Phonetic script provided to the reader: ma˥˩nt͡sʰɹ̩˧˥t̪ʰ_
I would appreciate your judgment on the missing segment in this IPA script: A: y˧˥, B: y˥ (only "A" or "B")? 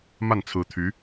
A